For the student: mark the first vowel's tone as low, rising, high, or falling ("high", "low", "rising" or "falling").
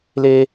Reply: high